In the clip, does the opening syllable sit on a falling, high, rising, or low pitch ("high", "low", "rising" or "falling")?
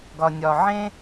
low